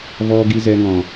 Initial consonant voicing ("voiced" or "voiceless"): voiced